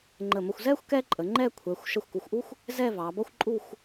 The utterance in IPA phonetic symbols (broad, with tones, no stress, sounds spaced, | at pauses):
ŋ͡ǃ ə˧˩ m ə˧ xʷ z ɛ˥ xʷ k ɛ˥ ǃʼ ə˩˧ ŋ͡ǃ ɛ˥˧ kʷʰ ɛ˩˧ xʷ ʃ ə˧˩ xʷ k u˩˧ xʷ ʔ u˥ xʷ | z ɛ˥˧ v ɑ˩˧ b ʌ˥ xʷ ǃʼ u˥˧ xʷ